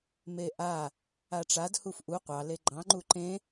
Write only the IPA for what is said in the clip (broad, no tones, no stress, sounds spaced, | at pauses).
m e ʔ a | a ʈ͡ʂ a d h u f ʔ u qʷ ɑ l e ɡ͡ǃ ɑ̃ ŋ͡ǃ u ǃ ẽ